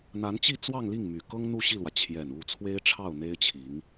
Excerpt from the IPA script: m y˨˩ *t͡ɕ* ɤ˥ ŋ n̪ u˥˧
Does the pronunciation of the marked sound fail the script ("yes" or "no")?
yes